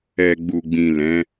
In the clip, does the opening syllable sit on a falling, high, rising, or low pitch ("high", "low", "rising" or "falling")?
low